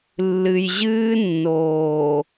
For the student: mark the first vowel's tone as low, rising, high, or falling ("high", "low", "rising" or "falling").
low